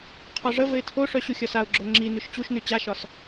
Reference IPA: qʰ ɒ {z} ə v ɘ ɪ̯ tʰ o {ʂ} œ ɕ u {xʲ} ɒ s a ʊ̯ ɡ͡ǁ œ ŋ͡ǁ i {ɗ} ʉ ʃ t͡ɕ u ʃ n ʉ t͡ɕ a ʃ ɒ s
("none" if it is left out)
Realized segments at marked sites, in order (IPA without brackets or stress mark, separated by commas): ʐ, ʂ, xʲ, n